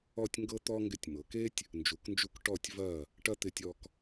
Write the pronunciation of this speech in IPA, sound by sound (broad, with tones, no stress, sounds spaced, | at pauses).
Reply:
ɔ˥˧ tʲ ŋ ɡ ɤ˥ t̪ ɔ˥ ŋ ɡ ɪ˧ tʲ m ɤ˩˧ k e˥ tʲ | n d͡ʒ u˩˧ k n d͡ʒ u˧ k ʈ ɔ˧˩ tʲ v ɐ˧˩ | ʈ ɐ˥ t̪ ɪ˧ tʲ ɔ˧ k